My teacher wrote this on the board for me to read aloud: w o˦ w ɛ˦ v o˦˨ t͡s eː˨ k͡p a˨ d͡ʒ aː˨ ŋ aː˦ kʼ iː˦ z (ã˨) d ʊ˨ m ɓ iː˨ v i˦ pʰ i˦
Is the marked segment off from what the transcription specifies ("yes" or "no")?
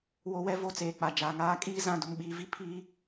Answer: no